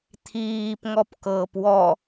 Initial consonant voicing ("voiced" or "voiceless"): voiceless